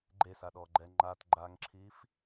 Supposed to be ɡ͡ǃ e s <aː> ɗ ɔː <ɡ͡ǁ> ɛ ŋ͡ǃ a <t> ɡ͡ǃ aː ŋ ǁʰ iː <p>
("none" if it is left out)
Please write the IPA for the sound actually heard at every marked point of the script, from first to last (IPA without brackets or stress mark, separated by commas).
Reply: a, ɡ͡ǃ, t, f